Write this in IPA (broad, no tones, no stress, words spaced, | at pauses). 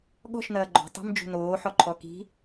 ɠɔ̤ʃnɐː ɡ͡ǃɔ̤ tˤi̤md͡ʒṳ noːħɔǃʰɔ ki̤